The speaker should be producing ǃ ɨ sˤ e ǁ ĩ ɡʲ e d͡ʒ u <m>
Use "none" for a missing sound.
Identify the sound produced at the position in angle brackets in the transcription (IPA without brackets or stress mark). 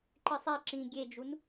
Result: n